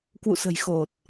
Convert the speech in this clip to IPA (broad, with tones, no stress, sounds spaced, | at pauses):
k w ṵ˧˨ s ə̤˨˩ j x o˨˩ t̚